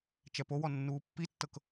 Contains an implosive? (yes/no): no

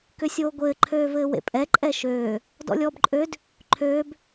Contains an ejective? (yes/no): yes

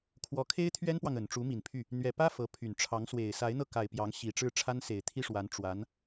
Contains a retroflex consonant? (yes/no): yes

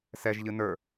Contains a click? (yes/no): no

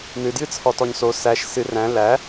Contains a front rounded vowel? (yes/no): no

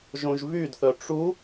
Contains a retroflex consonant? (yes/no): yes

